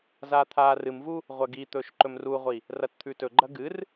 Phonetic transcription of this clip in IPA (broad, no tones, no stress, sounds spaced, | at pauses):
z aː t̪ʰ aː r ɨ m v u | ʁʷ ɐ ɡ i t̪ ɵː ʃ ǃ ɵ m r u ʁʷ i | r ɐ t t̪ʰ ʉ t ɵ ɡ͡ǃ ɐ ɡ ɨ r